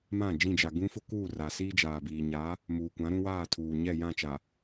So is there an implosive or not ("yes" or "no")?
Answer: no